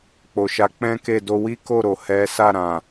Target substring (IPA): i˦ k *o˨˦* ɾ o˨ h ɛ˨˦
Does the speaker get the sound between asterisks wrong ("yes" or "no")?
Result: yes